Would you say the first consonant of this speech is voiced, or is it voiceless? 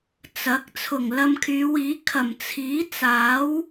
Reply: voiceless